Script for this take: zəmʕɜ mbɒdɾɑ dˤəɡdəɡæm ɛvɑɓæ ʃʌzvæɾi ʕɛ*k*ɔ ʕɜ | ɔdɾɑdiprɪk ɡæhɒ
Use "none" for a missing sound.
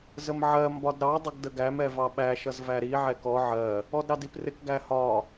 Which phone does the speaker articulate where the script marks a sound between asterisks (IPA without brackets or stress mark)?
k